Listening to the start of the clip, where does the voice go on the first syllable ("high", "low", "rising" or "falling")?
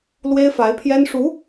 high